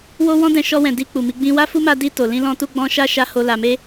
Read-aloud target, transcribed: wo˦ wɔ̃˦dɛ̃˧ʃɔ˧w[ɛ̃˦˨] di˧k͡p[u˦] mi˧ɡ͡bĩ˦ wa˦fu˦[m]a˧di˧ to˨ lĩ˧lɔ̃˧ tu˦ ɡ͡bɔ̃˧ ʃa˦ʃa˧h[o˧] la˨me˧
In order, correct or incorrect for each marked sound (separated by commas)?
incorrect, incorrect, correct, incorrect